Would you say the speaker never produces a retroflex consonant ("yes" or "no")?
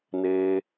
yes